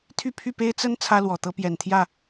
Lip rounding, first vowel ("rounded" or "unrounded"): rounded